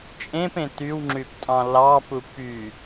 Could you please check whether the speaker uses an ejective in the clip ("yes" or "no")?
yes